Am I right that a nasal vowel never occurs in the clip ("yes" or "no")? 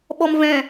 no